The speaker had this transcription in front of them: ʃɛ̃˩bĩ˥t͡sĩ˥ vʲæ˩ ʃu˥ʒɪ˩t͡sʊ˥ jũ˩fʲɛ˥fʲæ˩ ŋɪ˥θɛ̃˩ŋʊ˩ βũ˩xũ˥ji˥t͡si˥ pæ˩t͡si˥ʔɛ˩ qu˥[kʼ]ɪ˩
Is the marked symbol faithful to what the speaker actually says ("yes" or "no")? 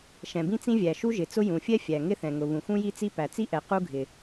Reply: no